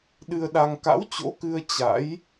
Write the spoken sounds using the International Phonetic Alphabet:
ɗɨ˧ə̯ɗa˧ŋ ka̰˧˥wt͡ɕo̰˧˥kɨ˧ə̯ t͡ɕa̰˧˥j

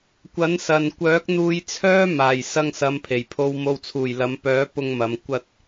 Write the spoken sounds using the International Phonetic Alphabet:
kʷɐ˨˥nsɐ˨nkʷœː˨˥k̚ n̪uː˧jt͡sʰœː˥maː˨˩j sɐ˧ŋsɐ˨˧mpʰe˨˩j pʰo˨wmo˨wt͡sʰuː˨˩j lɐ˨˧mpœː˨˥ pʊ˧ŋmɐ˨˧m kʷɐ˧t̚

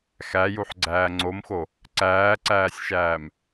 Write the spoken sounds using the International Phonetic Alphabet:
xæjuħɡ͡ǀæː ŋ͡ǀomxo | ǀæːǀæːsʲʃæːm

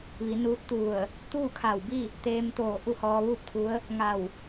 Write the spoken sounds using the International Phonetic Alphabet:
ʋi˩˧nuː˧˥t̚t̪u˧˩ə̯ | t̪uː˥˨kʰa˧˩wbi˥˨ | t̪eː˧mt̪oː˧˩ ʔu˥˨hɔː˧ʋuː˥˨p̚kʰu˧˥ə̯ | ŋa˧˩w

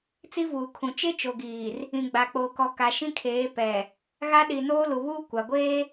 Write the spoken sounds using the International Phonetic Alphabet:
t͡si˦vuː˨kʰũ˨ t͡ʃe˦t͡ʃo˨ɡiː˨r | ĩ˨ɡ͡ba˨k͡po˨kɔ˨ ka˨ʃĩ˦kʰeː˨˦ pɛ˨ | ɣa˦ ɗi˨noː˦lu˨βuː˦ kʷa˨ɡʷeː˦

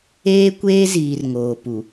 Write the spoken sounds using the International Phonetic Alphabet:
eː˦kʷeː˦ziː˨r ŋoː˨pu˨

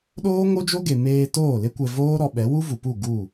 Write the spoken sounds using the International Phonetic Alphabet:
ɗoː˦ŋo˦d͡ʒo˦ ɡe˨meː˧ toː˦˨le˦kʷɛ˧voː˦ ɾɔ˧ɓɛ˨˦ wu˦vu˨pu˦˨ ɡu˦˨

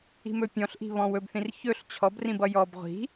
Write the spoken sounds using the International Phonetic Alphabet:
i̤mɵpʲɔ̃ɬʔi̤ βɔ̃wɵbθĩr çɵɬ t͡ɕʰɔbrĩbʌ jɔb ʁʷi̤

